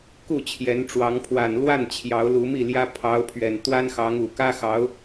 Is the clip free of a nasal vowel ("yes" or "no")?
yes